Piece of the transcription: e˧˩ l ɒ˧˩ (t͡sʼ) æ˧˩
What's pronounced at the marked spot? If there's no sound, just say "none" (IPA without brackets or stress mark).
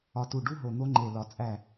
t͡sʼ